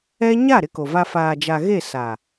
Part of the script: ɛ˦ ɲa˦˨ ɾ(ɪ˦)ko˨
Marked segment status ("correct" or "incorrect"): correct